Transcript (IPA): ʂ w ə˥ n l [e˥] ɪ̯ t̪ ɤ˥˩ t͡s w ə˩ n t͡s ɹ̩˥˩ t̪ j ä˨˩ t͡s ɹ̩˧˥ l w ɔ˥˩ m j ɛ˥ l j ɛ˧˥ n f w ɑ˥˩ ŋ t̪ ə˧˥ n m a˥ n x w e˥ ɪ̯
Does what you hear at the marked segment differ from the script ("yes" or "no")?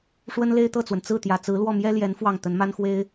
no